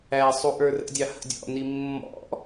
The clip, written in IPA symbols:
æ sˤuʔə˞rə̰dʲɑ hə̰dʲɔ̰ni mːɔ̰

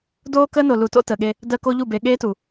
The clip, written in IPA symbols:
doː˦kəː˦ no˨lu˨to̰˦ təː˨ɠe˦ | dəː˦ko˦ʎu˦˨ be˨ɠeː˦tu˨

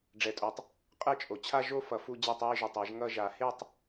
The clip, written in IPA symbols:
ɖ͡ʐɛ˨˩tʼo˨˩tˤ | qʼɛ˥˧t͡ʃʼo˨˩ t͡ɕʰa˥˧ʒo˥˧ fʌ˨˩fu˥˧ d͡ʑa˥˧tˤwi˥˧ʒu˨˩tˤɛ˨˩˦ʒ ŋʌ˥˧ʒa˨˩˦ he˥˧tˤ

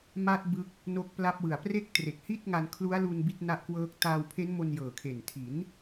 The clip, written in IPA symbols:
ma˦˥t̚ bɯ˦˥k̚ | no˦˥k̚pla˦˥p̚wɯ˨˩a̯ pre˥˩k̚tre˨˩k̚ hi˥˩t̚ŋa˧nkʰlu˦˥a̯lu˧n bi˦˥t̚ na˦˥ʔkwɤː˦˥k̚ taː˧wpʰe˦˥nmo˧n jɤː˨˩kʰe˨˩n tʰi˩˦n

